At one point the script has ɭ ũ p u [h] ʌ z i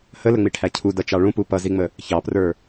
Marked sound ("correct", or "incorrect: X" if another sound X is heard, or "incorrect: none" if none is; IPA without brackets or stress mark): incorrect: p